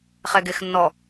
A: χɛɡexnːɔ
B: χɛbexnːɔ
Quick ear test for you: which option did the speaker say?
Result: A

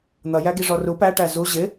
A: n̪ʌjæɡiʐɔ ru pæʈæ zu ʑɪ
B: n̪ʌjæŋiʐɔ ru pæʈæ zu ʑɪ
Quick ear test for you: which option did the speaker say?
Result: A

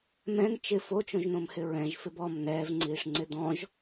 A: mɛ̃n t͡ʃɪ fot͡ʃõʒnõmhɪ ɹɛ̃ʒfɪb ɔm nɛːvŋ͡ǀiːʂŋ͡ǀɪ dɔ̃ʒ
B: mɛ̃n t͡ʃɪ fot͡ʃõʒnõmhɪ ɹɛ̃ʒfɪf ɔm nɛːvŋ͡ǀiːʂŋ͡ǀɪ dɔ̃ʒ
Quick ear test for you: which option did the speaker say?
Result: A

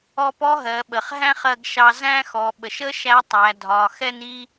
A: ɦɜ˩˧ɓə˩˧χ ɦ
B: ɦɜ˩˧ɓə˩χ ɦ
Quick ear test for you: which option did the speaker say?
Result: B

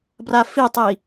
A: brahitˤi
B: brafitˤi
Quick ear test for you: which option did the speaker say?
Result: B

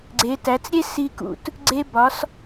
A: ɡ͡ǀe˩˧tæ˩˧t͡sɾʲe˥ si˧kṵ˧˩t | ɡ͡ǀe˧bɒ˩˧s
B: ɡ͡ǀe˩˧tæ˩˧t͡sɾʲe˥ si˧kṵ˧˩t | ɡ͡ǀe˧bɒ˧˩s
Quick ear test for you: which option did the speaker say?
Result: A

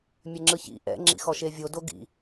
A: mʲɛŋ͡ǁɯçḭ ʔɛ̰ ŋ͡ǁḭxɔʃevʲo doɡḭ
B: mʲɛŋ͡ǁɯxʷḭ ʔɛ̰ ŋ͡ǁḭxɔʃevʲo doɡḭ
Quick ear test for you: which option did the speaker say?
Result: A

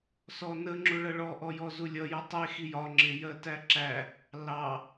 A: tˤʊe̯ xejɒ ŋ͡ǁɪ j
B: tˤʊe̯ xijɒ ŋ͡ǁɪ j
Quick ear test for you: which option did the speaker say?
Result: B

